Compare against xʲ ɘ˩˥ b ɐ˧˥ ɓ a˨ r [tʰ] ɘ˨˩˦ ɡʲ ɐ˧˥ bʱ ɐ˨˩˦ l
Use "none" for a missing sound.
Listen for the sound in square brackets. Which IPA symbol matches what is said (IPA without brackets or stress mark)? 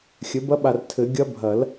tʰ